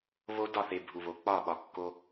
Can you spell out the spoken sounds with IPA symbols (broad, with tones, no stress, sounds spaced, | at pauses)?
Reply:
β o˦ d ɒ˦˨ θ e˨ bʱ u˨ β o˨˦ k͡p ɒ˦˨ ɓ ɒ˨ kː o˦